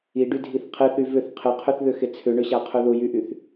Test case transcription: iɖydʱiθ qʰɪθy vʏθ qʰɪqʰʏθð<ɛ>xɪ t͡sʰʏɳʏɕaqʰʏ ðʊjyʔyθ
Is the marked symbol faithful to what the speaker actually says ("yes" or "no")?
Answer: no